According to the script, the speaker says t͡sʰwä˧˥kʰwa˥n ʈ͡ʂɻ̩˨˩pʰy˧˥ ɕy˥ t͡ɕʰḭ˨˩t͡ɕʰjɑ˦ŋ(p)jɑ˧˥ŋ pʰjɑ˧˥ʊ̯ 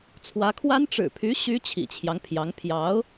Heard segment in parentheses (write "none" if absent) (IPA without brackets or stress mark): pʰ